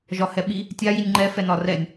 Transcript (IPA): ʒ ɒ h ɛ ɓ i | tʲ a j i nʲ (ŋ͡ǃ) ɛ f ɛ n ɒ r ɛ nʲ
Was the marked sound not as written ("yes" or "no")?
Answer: no